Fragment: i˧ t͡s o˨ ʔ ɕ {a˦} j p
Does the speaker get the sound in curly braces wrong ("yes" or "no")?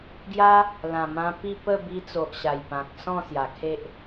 yes